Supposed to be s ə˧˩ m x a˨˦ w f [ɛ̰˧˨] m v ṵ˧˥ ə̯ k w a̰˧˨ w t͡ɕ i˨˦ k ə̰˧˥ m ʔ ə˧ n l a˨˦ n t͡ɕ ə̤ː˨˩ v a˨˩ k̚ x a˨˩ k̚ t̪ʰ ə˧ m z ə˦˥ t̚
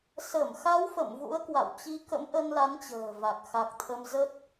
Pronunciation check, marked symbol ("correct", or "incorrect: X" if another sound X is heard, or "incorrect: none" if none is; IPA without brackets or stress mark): incorrect: ə̰˧˨